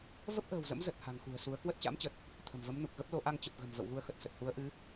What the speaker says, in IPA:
v ə˦˥ p̚ ʔ ə̤ː˨˩ w z ə̰˧˥ m z ə˨˩ t̚ h a̤˨˩ ŋ x ṳ˨˩ ə̯ s u˨˦ ə̯ k w ə˦˥ t̚ t͡ɕ a̰˧˥ m t͡ɕ ə˨˩ t̚ | t̪ʰ ə̤˨˩ m v ə˨˦ m n u˨˩ k̚ ɣ ə˦˥ p̚ l o˨˦ ʔ a˧ ŋ t͡ɕ ə˨˩ p̚ ɣ ə̤˨˩ m v ə̰˧˨ w ɣ u˧ ə̯ x ə˨˩ t̚ s ə˨˩ t̚ h u˨˦ ə̯ ʔ ɨ˨˦

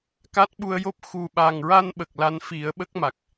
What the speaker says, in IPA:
k a˦˥ t̚ ɓ u˧ ə̯ j o˦˥ p̚ x u˨˩ ɓ a˨˩ ŋ ɹ a˧ n ɓ ə˨˩ k̚ l a˧˥ n f i˨˩˦ ə̯ ɓ ə˦˥ k̚ m a˨˩ k̚

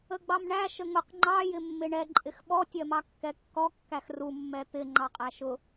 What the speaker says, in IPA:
ə ɡ͡b ɑ m ɳ æ ʃ ə ŋ ʊ q ŋ͡ǃ ɑ j ɪ mː ɪ ɳ ɛ ǃʼ ɪ x ɓ ɔ tʲ ɜ m ɑ kː ɛ kː ɔ kː æ x r u mː ɛ t̪ ɪ ŋ͡ǃ ɑ qʼ æ ʃ ʊ

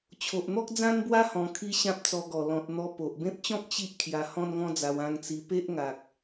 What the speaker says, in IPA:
t͡ɕʰ o˨ ʔ n̪ ɔ˦ k̚ d͡z ã˧ n b w a˧ h ɔ̃˧ kʰ i˦ ɕ ã˦ p̚ t͡s ɔ˧ ɡ ɔ˨˩ l ɔ̃˨ t̚ n̪ ɔ˧ p o˨ ʔ b ẽ˦ p̚ t͡ɕ ɔ̃˦ k̚ t͡ɕ i˦ ʔ kʰ j a˧ h ɔ̃˦ n ŋ ɔ̃˦ d͡z a˧ w ã˧ ŋ t͡s i˧ p e˦ ʔ ŋ a˨ k̚

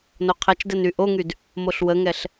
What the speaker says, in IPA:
n o qʰ ɛ t͡ʃ d ɛ n y ʔ o ŋ y d | m o ɬ w ə ŋ ɛ ɬ

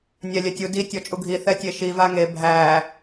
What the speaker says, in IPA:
nʲ æ lʲ ɛ tʲ u d i tʲ ɔ t͡ʃʼ u ɡʱ i θ ɛ tʲ e ʃ i v a ŋ e bʱ æ

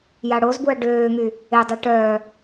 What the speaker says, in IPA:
j a ɽ o z b u ɐ̯ ɖ øː ŋ y | e dˤ ɛ ʈ œː

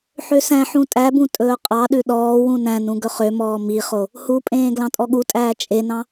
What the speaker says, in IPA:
ħ ø s æ̃ ħ ũ tʼ æ b ũ tʼ ɵː qʼ ɑ ɗ ʉ ɗ ɔː w ũ n æ̃ n ũ ɡ ɵ χ ø m ɔː m i χ o | h u pʼ ẽː ɡ l ɑ̃ tʼ ɔ ɠ u tʼ æː t͡ʃʼ e n ɑ̃

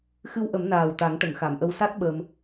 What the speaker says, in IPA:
x ɨ˧ w ʔ ə˨˩˦ m n aː˨˩ w t̪ a˨˩˦ ŋ ʈ ə˨˩˨ ŋ x a˨˩˨ m ʔ ə˧ w s a˦˥ t̚ ɓ əː˧ m

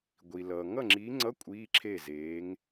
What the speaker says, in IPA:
ɡʷ i˩ l ʌː˩ ŋ ʌ˥˩ ŋ͡ǁ iː˨˥ ŋ͡ǀ ʌ˧˥˧ kʷʼ iː˧˥˧ ǁʰ e˥˩ z eː˨˥ ŋ

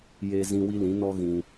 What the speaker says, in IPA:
j e˨ z ĩ˨ w i˦ l ĩ˨˦ n ɔ˦ ɣ ĩ˧

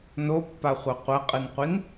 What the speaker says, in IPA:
n o pː a χʷ a qʷ ɐ qʼ ɨ n qʷ i n

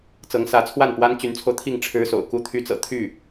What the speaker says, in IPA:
t͡s ɤ˧˥ ŋ s ä˧˥ t͡sʰ w a˥˩ n p w a˥ n t͡ɕ y˧˥ n t͡sʰ o˧ ʊ̯ t̪ʰ i˥˩ ŋ ʈ͡ʂʰ ɻ̩˥ s o̰˨˩ ʊ̯ k u˥ t̪ʰ y˥ t͡s ɤ̰˨˩ t̪ʰ y˥˩

